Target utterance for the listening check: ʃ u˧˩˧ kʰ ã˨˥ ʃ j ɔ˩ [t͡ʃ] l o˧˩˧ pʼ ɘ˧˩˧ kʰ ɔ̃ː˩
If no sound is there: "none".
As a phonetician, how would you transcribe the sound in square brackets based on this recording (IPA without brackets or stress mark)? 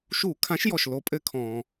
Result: ʃ